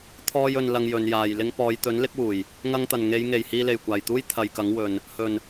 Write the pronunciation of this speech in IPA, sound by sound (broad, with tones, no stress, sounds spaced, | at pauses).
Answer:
t̪ʰ ɔː˧ j ɵ˨ n l ɐ˧ ŋ j ɵ˨˧ n j aː˨ j l ɪ˥ ŋ p ɔː˨˧ j t̪ ɵ˨˥ n l ɪ˥ k̚ w uː˨˩ j | ŋ ɐ˧ ŋ t̪ ɐ˨˩ n ŋ e˨˧ j ŋ e˨˩ j h iː˧ l e˨˩ j kʷ aː˨˩ j t̪ uː˥ j t̪ʰ ɐ˨˧ j k ɐ˨˥ ŋ w ɵ˨ n | h ɵ˨˩ n